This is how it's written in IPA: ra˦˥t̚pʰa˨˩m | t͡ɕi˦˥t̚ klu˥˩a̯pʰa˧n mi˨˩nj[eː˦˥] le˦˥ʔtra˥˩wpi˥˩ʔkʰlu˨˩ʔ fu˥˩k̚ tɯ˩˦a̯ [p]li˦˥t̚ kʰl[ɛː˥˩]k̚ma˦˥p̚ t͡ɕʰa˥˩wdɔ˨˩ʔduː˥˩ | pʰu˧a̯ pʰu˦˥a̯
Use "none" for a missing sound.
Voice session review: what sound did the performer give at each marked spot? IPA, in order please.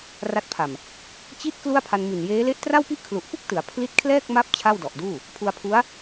eː˦˥, pʰ, ɛː˥˩

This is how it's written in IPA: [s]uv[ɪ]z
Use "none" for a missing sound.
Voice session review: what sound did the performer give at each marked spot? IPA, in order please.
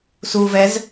s, ɛ

